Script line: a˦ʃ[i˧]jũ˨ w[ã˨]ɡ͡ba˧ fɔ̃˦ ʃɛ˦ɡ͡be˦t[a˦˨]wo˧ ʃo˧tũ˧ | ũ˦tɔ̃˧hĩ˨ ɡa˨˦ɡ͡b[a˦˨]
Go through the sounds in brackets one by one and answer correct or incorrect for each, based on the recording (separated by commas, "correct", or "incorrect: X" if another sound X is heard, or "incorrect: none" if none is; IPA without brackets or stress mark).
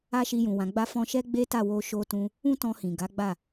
correct, correct, correct, correct